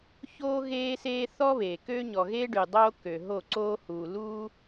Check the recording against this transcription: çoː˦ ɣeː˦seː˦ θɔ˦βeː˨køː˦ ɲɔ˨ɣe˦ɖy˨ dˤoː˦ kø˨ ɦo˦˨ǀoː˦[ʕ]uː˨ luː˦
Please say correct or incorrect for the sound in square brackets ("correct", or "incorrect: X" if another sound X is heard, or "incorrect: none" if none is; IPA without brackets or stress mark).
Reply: incorrect: h